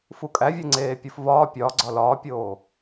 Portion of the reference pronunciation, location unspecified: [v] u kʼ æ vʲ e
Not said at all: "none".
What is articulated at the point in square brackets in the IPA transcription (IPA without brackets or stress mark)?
f